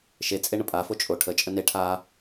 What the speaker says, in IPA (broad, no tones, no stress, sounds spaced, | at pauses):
ʃ e t͡sʼ e ɳ ə pʼ a f o t͡ʃʼ o ʈʰ ə t͡ʃʼ ə n e ʈʰ a